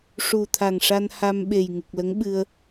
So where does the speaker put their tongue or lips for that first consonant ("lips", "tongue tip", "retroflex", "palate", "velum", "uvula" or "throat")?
retroflex